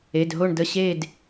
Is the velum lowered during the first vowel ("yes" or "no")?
no